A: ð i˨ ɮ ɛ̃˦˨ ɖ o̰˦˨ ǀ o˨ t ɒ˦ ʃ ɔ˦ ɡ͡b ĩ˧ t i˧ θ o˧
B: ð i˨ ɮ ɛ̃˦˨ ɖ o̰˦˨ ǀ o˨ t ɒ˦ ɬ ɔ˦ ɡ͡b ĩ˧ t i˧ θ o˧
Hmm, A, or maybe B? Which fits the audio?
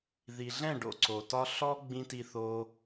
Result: B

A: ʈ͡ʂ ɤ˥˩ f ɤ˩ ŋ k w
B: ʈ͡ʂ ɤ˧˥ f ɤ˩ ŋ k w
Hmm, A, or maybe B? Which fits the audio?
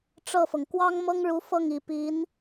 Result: A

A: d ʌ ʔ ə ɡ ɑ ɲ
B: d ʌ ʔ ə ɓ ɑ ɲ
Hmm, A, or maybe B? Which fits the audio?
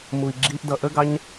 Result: A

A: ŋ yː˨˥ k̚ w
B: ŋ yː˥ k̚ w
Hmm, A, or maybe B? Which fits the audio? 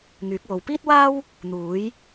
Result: A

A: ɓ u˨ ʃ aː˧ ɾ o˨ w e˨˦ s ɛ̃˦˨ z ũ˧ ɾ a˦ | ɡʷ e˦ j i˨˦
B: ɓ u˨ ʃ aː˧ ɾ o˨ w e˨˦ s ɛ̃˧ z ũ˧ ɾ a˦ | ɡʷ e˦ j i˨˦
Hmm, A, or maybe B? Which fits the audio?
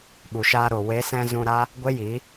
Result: B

